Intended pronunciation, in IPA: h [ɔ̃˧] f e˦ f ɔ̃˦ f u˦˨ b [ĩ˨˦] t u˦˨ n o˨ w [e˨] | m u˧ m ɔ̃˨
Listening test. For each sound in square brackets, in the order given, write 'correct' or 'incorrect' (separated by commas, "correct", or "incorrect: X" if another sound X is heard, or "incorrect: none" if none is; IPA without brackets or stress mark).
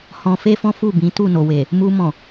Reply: correct, correct, correct